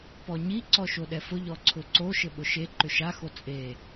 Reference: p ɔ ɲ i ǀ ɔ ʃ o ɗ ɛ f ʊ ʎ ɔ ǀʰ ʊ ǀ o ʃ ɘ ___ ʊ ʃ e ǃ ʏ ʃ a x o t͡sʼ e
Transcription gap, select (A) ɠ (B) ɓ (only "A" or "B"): B